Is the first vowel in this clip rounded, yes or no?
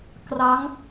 no